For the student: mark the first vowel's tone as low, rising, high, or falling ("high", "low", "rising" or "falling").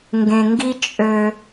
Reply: low